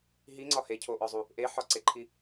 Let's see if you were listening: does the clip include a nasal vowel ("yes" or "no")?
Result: no